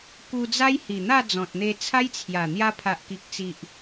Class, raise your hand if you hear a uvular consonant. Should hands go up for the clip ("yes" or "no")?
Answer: no